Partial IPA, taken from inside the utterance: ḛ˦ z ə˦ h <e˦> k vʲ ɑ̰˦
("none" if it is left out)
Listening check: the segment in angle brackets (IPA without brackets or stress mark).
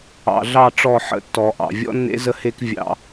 e˦